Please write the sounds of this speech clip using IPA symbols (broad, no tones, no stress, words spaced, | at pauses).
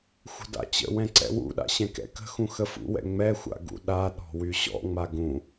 xʷə̤da̰t͡ɕə̰wɛ̃ ǀɛ̰wṵɗa̰ ɕɛ̃kɛ̰kə̤xũ xəfṵwɛ̰ ŋ͡mɛxʷa̰ ɡṵɗaɗɔ̤ wyɕɔ̰ŋ͡ma ɡũ